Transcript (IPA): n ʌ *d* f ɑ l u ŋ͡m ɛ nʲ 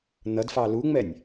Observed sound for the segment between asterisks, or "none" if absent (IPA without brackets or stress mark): d